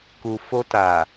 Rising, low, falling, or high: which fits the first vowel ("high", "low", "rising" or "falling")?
low